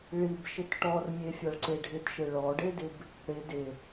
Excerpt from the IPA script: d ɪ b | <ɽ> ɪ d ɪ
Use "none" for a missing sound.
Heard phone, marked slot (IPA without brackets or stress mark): ɽ